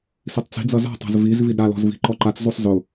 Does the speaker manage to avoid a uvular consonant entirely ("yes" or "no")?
yes